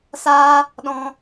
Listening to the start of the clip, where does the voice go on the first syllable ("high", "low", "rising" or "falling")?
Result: high